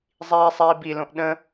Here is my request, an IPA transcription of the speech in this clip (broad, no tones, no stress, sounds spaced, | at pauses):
zˤ iː sˤ iː b i l õ ʔ ɗ ə̃